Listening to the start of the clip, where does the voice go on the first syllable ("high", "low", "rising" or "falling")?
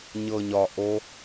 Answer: low